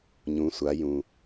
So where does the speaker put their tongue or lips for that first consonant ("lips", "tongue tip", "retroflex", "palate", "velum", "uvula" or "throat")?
palate